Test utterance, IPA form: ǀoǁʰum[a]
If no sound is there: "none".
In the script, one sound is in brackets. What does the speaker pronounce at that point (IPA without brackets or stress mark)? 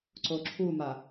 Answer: a